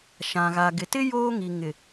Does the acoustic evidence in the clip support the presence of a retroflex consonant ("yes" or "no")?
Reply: no